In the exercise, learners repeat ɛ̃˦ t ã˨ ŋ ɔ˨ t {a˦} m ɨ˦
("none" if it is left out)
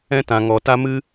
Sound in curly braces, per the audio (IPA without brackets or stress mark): a˦